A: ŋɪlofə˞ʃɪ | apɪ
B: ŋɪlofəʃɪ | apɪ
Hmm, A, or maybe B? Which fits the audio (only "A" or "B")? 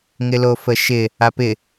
B